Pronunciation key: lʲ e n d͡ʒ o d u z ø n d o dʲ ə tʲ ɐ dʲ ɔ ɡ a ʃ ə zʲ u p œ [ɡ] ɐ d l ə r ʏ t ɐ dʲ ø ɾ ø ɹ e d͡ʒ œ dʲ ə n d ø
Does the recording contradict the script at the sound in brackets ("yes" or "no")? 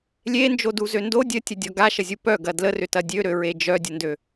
no